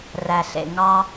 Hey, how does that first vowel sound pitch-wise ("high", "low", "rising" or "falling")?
low